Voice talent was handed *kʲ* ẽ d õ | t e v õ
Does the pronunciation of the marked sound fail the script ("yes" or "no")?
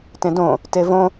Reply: yes